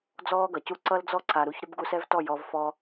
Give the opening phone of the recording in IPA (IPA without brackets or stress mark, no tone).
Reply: d͡z